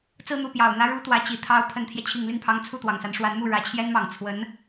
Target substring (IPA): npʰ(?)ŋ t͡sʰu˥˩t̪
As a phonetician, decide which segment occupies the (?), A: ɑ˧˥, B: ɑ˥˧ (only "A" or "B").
A